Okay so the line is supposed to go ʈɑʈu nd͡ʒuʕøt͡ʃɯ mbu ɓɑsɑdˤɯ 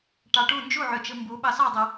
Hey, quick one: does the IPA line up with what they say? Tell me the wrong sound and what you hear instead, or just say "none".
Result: none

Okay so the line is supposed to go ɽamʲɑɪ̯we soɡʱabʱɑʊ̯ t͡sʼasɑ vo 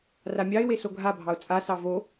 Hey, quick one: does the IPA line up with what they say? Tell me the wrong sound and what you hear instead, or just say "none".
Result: ɽ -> r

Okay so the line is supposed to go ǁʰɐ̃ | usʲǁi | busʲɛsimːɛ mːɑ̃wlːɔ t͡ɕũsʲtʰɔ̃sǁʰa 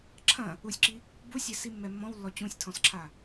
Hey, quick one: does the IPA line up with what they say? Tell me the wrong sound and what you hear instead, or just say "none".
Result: ɑ̃ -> ɔ̃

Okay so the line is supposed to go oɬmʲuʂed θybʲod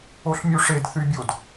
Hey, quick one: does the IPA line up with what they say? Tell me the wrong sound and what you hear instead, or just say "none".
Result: none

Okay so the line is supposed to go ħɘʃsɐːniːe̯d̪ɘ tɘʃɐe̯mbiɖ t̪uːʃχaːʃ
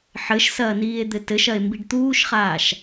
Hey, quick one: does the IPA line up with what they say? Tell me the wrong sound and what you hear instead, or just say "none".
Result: none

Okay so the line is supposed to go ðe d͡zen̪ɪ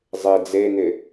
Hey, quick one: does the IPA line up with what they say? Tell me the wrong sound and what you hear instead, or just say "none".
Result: ð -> zˤ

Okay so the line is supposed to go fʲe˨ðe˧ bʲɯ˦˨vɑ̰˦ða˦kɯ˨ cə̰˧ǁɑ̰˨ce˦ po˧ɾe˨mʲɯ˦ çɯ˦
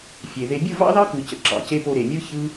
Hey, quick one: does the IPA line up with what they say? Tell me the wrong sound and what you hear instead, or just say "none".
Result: a˦ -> ɑ˦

